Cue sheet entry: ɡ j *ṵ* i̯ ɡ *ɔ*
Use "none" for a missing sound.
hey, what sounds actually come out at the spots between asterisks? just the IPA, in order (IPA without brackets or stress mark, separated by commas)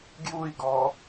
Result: u, ɔ